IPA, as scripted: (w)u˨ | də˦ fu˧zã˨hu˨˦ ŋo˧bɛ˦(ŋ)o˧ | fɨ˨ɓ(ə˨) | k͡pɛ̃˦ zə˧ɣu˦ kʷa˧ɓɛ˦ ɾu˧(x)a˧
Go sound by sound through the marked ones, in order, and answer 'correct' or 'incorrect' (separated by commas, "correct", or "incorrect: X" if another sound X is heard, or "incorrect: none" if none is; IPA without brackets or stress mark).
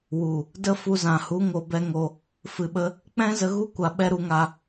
correct, correct, incorrect: ə˧, incorrect: ŋ